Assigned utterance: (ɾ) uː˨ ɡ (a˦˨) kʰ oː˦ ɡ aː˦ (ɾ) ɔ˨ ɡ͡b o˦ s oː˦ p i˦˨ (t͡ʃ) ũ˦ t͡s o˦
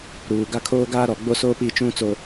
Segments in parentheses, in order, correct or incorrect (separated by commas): correct, incorrect, correct, correct